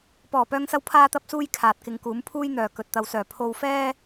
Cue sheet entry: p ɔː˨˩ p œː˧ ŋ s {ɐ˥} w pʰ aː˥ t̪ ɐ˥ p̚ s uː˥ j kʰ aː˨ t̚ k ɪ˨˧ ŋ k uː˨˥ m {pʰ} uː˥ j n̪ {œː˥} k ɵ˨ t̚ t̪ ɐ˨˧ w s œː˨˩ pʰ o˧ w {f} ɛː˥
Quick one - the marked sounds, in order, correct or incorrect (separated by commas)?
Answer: incorrect, correct, incorrect, correct